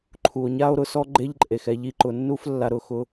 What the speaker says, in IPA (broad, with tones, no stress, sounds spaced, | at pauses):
ǃʰ u˨ o̯ ɲ a˦ o̯ ɾ ʊ˧ s ɔ˦ ɡ͡ǃ e˦ ʎ ǃʼ e˨ x ɛ˧ ʎ i˧ ǃ ʊ˨ nː u˦ f lː a˧ ɾ ʊ˦˨ x ʊ˧